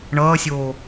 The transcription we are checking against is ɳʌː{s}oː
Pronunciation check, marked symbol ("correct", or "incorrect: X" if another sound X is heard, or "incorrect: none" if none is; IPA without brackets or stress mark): incorrect: sʲ